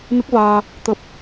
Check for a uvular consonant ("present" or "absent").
absent